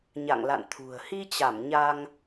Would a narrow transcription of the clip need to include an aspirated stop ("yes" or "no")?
yes